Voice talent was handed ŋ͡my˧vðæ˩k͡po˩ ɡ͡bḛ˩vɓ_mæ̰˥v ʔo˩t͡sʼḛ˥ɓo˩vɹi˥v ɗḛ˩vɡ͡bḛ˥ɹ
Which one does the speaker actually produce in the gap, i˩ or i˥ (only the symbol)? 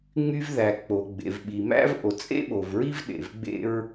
i˩